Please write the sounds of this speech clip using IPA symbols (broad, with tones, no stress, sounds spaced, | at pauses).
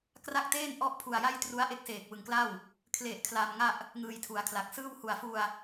k r a˥˩ k̚ t eː˥˩ n ʔ ɔ˥˩ ʔ pʰ u˧ a̯ j a˥˩ j t r u˦˥ a̯ ʔ e˦˥ k̚ s eː˨˩ k̚ w ɯ˨˩ ŋ k l a˥˩ w | kʰ l e˨˩ ʔ kʰ l a˧ m ŋ a˥˩ ʔ | ŋ ɯː˧ j tʰ u˩˦ a̯ kʰ l a˨˩ k̚ s ɯː˥˩ w h u˨˩ a̯ f u˧ a̯